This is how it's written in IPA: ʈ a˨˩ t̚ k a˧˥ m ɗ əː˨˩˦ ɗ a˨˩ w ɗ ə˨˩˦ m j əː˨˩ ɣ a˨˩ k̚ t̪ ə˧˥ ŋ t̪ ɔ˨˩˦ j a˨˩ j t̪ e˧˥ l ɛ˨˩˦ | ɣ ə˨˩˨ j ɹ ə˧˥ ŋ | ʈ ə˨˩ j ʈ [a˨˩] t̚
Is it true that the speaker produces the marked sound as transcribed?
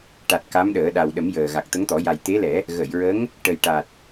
yes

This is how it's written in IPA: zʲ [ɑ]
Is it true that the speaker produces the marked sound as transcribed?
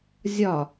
no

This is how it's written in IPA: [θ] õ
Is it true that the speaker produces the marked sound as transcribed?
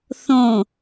yes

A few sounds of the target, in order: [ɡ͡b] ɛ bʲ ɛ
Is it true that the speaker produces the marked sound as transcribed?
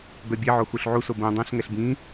no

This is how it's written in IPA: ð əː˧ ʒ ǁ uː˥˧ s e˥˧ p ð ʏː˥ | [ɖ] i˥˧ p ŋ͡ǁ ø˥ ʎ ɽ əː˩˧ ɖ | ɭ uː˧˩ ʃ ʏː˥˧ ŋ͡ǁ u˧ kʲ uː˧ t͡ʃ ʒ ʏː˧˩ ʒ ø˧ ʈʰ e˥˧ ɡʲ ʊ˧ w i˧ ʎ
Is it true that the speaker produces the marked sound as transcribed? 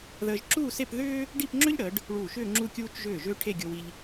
yes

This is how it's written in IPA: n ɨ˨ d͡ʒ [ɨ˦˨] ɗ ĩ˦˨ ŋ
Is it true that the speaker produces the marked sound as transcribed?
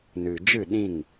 yes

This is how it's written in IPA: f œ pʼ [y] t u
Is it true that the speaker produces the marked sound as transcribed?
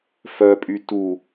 yes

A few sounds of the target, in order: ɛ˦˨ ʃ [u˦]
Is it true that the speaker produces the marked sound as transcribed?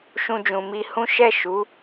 no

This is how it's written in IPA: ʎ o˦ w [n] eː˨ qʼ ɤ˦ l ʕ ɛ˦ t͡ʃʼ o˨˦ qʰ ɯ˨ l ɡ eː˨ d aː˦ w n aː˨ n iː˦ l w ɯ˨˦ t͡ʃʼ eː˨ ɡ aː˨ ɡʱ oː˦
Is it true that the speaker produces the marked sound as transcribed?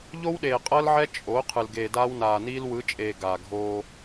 no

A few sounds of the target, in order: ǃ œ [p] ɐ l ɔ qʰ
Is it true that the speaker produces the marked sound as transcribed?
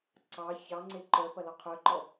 yes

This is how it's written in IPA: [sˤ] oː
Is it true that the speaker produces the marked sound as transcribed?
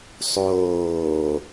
yes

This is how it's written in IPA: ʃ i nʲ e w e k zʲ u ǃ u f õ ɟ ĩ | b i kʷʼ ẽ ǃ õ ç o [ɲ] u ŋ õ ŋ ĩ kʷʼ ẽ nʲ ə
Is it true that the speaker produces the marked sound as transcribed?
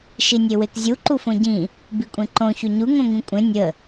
yes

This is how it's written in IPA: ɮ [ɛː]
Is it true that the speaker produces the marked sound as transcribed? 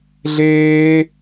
no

